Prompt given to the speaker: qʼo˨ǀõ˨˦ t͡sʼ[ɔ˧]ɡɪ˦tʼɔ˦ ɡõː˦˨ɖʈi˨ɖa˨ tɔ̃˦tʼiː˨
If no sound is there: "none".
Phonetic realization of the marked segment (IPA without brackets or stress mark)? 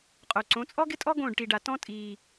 ɔ˦